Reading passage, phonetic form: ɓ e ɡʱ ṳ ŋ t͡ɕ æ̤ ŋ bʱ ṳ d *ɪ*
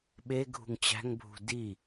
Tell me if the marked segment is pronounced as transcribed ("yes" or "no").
no